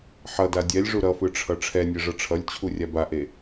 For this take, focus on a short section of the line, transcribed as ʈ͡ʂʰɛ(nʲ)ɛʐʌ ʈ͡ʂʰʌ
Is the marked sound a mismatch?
no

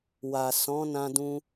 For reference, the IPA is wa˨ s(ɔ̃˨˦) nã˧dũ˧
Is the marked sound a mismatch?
no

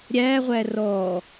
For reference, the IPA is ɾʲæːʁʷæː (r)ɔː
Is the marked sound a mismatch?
no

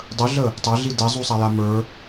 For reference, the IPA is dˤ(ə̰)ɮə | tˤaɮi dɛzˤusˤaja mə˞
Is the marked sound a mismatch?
yes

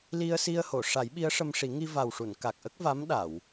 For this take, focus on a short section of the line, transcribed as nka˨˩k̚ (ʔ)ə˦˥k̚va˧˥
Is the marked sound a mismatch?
no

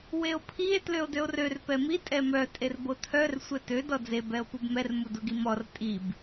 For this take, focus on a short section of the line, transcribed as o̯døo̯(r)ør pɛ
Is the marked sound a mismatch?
no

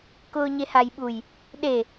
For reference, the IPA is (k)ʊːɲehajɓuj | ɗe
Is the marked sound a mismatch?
no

